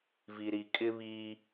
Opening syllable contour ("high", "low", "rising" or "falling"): low